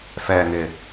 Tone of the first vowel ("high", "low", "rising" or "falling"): low